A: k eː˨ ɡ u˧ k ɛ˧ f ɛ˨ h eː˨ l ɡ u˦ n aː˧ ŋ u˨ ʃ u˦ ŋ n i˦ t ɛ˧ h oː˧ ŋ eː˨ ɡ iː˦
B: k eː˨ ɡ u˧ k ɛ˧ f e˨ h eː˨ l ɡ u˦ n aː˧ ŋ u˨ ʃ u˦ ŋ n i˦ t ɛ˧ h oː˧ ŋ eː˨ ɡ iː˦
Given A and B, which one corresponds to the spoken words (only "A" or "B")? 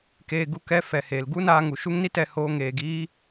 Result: A